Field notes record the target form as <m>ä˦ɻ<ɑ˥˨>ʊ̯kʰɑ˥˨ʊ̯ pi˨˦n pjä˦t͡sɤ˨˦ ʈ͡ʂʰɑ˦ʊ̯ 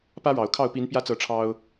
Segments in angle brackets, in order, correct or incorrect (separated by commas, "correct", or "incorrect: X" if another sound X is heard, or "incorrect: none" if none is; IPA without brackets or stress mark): incorrect: p, incorrect: ɑ˨˩